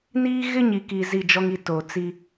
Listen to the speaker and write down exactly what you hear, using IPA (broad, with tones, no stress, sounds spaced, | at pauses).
n iː˦ ɣ ɪ˦ ɲ i˨ k i˨ z i˦˨ d͡ʒ ɔ˦ ŋ i˨˦ t o˨ t͡s i˦